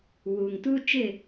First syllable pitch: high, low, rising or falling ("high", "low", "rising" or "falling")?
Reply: low